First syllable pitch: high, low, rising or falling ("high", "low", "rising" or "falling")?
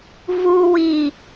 low